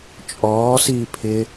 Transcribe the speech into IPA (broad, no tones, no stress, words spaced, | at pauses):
t͡ʃʼɔːsiː pʰɪ